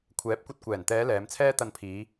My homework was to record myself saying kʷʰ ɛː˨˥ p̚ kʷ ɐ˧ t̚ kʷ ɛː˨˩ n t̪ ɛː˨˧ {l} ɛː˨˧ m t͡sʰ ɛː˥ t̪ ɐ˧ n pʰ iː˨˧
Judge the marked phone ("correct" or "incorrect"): correct